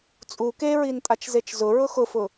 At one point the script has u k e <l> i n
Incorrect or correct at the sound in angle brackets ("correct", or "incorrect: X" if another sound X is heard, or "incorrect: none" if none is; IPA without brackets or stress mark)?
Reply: incorrect: ɹ